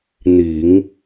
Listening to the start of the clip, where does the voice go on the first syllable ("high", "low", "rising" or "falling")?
low